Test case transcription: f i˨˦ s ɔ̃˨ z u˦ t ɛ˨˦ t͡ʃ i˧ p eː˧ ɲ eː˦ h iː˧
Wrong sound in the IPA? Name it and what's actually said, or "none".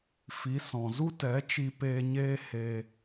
iː˧ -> eː˧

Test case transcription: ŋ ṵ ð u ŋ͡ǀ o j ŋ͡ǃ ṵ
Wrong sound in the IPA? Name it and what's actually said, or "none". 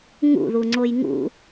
ŋ͡ǃ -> ŋ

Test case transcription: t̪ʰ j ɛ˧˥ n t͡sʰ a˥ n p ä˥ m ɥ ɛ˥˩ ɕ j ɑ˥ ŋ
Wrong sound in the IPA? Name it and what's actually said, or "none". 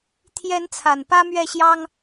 a˥ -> a˨˩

